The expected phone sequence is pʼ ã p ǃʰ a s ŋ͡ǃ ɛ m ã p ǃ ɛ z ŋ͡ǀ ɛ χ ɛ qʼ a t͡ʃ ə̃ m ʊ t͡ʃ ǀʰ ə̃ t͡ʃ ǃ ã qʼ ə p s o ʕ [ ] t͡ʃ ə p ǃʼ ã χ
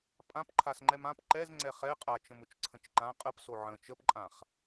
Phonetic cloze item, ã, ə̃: ə̃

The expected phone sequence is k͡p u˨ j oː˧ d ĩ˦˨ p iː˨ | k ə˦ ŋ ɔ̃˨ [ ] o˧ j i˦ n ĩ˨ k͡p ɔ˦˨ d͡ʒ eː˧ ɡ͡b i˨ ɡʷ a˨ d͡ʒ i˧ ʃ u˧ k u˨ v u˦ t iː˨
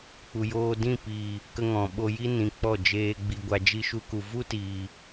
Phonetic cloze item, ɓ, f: ɓ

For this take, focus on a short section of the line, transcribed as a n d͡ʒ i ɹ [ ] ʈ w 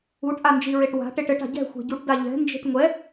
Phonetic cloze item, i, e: e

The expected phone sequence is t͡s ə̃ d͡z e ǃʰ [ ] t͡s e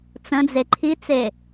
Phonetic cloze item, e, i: i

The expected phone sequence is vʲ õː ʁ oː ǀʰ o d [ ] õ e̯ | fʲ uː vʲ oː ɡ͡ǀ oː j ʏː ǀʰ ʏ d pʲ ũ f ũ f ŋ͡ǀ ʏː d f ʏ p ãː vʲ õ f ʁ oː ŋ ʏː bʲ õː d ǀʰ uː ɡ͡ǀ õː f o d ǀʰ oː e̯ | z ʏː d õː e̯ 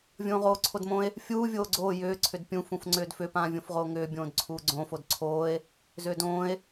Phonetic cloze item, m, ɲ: m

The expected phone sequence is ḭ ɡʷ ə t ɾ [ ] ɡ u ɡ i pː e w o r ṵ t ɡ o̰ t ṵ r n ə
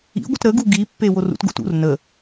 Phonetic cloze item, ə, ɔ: ə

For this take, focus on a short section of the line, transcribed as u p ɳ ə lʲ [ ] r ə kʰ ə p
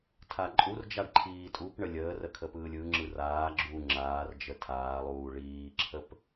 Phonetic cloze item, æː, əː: əː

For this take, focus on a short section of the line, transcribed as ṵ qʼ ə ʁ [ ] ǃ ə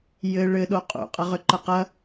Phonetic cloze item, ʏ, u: ʏ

